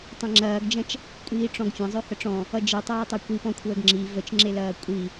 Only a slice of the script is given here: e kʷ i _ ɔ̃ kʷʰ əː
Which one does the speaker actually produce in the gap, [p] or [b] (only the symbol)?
p